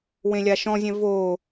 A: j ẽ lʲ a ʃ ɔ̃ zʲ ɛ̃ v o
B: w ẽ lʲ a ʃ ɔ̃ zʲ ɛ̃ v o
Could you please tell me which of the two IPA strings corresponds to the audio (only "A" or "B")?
B